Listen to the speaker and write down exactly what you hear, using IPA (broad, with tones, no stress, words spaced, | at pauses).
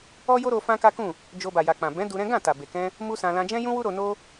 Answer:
ɔ˦jo˦ɾo˧ fã˦ka˦kũ˦˨ | d͡ʒo˧ba˨ja˨k͡pã˨ bɛ̃˨˦ du˧ɾɛ̃˦ ɡã˦˨ta˨be˨kɛ̃˧ | mu˦sã˧ lã˧d͡ʒɛ̃˦jũ˦wu˦ ɾo˧no˦